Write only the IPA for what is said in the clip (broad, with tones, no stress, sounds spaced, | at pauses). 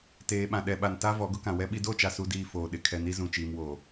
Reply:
t eː˨ ɓ ã˨ ɗ ɛ˨ ɓ a˨ n t a˦ v ɔ˨˦ ɡ ʊ˦ k ã˨ w ɛ˦ ɓ i˦ d o˦˨ t͡ʃ a˨ s u˨ d iː˨ f oː˨ ɗ ɪ˨ kʰ ɛ˨ n i˦ z ũ˨ t͡ʃ iː˨ m w oː˨